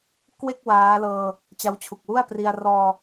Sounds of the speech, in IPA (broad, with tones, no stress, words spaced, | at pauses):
kwe˥˩k̚ waː˦˥lɤː˧ | t͡ɕa˦˥wt͡ɕʰu˨˩k̚wu˥˩a̯pri˧a̯ rɔː˧